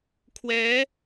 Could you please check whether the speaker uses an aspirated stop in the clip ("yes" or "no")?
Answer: yes